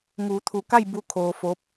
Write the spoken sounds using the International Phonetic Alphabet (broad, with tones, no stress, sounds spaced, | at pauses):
ŋ uː˩˧ t̪ʰ u˩˧ k a˥˨ j b u˧˥ kʰ oː˧ f o˧˥ p̚